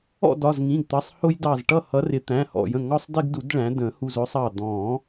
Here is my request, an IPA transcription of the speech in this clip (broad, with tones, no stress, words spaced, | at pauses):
ɔ̰˥˨dɒ˩˧˩zŋĩ˩˧˩ɡ t̪ʌ˩˧˩sˤhʊ˦jdɑ˧˩zʈʌ˥˨ hʌ˨˦rɪ˨˩˦t̪æ̃˩˧˩ hɔ̰˧˩jə̃˧˩ ŋɒ˦sˤdɪ˦ɡdu˨˩˦d ɭæ̃˨˦ də̃˨˩˦hu˧˩z ʊ˦sˤɑ˧˩ d̪ɔ̃˨˩˦